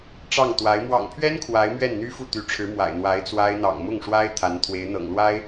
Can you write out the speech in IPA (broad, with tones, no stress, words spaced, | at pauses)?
ʈ͡ʂɑ˥˩ŋt̪wa˧˥ɪ̯ mwɑ̰˨˩ŋpʰɥɛ˥n kʰwa˧˥ɪ̯mɥɛ˥˩nn̪y˥ fu˥˩t̪y˧˥ʈ͡ʂʰɻ̩˧˥ mwa̰˨˩ɪ̯ n̪wa˧˥ɪ̯t͡swa˥ɪ̯ n̪ɑ̰˨˩ŋmʊ˥˩ŋ ʂwa˥ɪ̯ t̪ʰa˧˥nt̪ʰwe˧˥ɪ̯n̪ɤ̰˨˩ŋlwa˥ɪ̯